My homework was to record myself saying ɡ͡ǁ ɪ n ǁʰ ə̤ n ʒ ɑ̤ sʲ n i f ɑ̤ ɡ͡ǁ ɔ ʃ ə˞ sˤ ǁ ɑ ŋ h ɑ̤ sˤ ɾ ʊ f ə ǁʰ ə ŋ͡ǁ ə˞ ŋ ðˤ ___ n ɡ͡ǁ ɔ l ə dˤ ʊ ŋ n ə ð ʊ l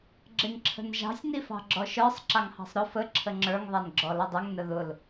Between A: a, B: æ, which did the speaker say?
B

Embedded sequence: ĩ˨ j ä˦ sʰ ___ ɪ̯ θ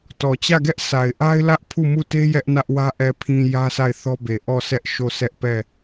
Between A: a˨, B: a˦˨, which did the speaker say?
B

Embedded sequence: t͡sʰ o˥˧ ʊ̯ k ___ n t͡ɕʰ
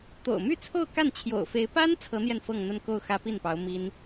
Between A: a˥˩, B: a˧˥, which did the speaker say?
A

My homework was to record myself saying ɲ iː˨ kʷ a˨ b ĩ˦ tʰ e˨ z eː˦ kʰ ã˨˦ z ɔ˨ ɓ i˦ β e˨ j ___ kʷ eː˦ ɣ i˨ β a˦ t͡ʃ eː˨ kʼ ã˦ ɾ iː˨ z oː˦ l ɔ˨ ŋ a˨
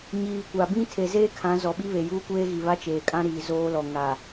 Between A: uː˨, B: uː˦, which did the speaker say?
B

